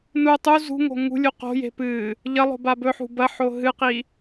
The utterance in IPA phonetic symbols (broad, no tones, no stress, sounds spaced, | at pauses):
n u tˤ u z ṳ ŋ o̤ ŋ ṳ lʲ u q o̤ j e̤ p ɨ | ʎ ɐ lˠ o̤ b a b ɵ ħ ṳ b ɐ ħ o ɦ ɨ q i